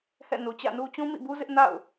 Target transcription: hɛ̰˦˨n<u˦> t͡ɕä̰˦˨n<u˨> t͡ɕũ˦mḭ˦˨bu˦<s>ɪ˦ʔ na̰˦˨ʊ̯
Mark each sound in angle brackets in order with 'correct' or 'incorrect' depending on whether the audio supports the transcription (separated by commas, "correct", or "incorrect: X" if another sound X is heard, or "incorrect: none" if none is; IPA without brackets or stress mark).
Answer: incorrect: u˨, incorrect: u˦, incorrect: z